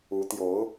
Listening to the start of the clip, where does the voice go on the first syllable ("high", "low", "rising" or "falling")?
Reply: rising